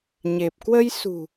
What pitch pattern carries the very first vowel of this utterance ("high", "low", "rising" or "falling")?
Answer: low